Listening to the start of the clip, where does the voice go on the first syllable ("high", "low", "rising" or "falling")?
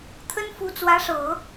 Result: high